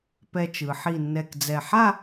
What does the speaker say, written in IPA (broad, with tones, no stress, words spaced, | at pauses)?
pɛ˧t͡ʃɯ˩˧ ħi˧˩nːɛ˧˩kd͡zɛ˧˩ ħa˥˧